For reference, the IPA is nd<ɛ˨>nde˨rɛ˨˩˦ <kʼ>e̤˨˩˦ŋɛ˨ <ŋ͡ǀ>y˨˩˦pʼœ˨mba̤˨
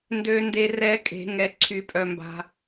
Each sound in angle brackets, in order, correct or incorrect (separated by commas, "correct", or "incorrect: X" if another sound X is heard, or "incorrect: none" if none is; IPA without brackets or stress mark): incorrect: ø˨, correct, incorrect: ǀʰ